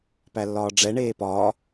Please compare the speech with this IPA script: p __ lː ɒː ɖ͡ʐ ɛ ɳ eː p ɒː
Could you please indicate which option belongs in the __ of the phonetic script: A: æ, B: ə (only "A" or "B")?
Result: A